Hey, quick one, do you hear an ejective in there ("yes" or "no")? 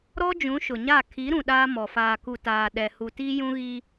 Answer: no